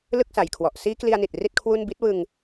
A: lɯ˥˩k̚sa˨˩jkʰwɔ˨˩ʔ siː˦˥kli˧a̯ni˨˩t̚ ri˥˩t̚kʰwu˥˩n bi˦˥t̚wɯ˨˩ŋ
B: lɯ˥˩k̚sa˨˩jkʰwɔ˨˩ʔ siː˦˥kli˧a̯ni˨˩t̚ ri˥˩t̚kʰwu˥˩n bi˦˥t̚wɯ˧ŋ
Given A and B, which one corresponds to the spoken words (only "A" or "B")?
B